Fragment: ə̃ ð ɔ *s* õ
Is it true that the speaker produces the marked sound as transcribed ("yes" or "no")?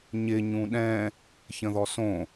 yes